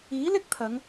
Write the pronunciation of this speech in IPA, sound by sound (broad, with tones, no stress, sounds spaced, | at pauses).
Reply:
iː˨˥ l ɪ˥ k̚ t̪ʰ ɐ˨˧ ŋ